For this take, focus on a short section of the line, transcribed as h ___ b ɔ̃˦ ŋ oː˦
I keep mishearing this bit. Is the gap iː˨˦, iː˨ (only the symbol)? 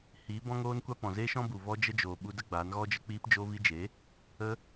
iː˨˦